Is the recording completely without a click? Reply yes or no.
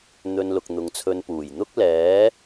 yes